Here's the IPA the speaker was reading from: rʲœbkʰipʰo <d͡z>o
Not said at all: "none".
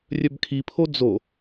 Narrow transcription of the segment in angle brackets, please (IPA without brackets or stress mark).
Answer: d͡z